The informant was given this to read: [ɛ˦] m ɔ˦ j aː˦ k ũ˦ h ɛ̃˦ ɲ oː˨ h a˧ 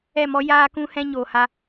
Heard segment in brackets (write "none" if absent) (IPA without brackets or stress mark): ɛ˦˨